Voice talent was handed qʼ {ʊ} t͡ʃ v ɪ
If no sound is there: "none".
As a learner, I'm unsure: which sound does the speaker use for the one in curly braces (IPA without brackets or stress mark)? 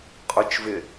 ʊ